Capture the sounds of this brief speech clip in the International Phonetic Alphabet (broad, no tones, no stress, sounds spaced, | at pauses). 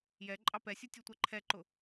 j ɛ ǃʼ ɑ p ɛ sʲ u tʲ u tʷ ɛ ǃʰ ɛ ǃ ʊ